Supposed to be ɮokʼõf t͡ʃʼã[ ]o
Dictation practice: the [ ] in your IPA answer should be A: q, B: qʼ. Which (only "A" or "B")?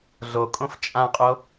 B